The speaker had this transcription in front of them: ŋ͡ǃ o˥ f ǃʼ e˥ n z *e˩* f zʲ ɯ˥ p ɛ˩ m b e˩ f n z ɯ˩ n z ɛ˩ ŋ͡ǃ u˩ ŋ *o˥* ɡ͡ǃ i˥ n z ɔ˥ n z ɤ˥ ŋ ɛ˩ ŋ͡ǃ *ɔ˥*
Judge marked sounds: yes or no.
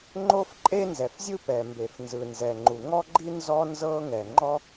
no, no, yes

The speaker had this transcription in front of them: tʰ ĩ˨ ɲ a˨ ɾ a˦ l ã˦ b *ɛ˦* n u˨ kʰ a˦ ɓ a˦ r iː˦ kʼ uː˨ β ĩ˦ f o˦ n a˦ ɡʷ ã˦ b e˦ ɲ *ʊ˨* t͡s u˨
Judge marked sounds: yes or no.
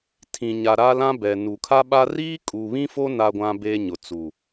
no, yes

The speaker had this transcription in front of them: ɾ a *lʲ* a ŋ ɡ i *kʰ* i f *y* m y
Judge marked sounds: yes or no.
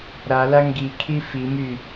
no, yes, no

